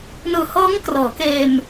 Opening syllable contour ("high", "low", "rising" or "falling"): low